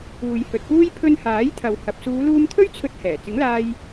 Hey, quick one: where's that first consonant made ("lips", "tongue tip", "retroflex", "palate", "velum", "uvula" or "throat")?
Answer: palate